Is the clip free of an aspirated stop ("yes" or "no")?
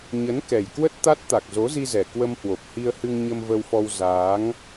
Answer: yes